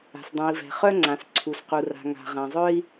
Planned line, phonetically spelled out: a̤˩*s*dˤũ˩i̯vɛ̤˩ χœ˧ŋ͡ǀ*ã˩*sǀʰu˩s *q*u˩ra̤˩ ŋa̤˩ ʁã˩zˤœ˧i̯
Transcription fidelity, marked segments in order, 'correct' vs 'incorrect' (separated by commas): correct, correct, correct